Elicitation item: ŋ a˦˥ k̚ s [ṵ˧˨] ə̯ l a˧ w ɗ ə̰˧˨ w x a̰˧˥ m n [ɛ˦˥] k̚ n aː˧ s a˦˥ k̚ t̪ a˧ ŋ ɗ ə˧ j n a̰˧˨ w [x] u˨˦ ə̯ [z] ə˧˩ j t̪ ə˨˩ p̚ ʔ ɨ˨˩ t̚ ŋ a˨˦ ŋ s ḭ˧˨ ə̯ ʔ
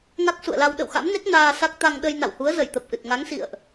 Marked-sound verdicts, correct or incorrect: correct, incorrect: e˦˥, incorrect: h, correct

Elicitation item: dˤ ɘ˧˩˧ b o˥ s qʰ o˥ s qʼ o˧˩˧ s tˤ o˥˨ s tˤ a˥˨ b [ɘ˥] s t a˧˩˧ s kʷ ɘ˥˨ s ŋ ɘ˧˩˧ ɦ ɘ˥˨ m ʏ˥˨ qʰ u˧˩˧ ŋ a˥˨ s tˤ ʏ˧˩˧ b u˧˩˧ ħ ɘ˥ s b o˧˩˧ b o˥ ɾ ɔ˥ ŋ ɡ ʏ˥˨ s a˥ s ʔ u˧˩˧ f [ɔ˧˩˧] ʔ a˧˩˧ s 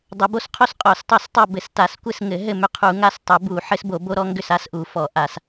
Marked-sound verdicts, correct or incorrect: incorrect: ɘ˧˩˧, correct

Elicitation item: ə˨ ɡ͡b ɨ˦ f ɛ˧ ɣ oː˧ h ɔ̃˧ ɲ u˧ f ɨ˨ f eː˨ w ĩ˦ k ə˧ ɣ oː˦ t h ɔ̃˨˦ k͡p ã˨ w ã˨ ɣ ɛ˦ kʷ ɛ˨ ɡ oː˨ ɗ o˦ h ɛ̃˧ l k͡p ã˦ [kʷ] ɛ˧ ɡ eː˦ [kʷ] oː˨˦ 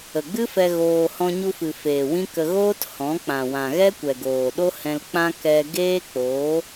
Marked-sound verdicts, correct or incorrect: incorrect: k, incorrect: k͡p

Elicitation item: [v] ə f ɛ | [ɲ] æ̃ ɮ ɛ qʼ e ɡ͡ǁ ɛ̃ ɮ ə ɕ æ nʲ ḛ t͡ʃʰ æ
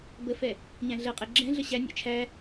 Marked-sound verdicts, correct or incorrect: incorrect: b, correct

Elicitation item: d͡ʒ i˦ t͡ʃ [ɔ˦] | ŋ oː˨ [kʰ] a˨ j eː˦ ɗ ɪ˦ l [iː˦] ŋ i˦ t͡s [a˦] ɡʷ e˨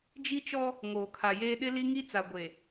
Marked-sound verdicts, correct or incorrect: correct, correct, incorrect: i˦, incorrect: a˨

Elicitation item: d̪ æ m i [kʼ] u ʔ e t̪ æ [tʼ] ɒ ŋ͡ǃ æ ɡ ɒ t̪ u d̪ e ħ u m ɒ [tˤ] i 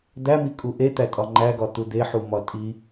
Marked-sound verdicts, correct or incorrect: correct, correct, incorrect: tʼ

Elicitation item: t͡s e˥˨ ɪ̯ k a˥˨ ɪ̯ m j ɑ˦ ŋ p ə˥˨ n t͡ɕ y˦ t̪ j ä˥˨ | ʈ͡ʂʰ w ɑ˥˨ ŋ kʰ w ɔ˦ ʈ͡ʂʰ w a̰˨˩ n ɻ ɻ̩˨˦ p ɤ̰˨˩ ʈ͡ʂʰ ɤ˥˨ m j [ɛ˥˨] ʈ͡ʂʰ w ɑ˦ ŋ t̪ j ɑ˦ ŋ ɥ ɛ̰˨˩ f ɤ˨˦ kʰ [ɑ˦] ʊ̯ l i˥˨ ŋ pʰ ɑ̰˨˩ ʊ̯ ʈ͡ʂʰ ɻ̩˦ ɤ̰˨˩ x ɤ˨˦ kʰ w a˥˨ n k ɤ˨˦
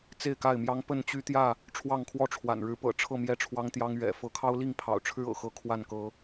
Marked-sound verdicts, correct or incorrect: correct, correct

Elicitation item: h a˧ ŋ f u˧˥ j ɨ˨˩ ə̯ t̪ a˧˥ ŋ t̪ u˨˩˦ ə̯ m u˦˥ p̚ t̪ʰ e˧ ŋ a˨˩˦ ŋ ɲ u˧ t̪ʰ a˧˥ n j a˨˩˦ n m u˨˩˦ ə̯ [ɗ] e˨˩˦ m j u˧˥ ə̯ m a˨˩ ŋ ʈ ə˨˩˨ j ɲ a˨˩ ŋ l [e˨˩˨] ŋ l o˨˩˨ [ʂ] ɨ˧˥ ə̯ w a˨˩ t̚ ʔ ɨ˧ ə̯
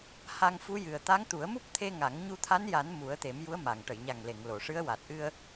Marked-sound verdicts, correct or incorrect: incorrect: t̪, correct, correct

